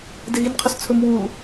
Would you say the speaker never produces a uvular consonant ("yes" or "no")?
no